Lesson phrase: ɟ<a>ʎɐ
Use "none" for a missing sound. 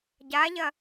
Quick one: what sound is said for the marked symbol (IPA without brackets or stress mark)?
a